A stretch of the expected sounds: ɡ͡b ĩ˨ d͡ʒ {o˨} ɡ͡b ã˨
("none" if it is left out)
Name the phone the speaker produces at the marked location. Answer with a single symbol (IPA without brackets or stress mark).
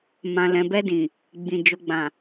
o˨